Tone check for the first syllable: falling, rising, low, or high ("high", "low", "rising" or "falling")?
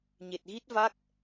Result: low